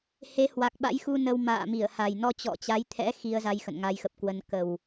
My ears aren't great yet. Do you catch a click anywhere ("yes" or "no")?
no